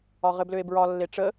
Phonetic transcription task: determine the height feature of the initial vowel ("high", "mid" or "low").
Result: low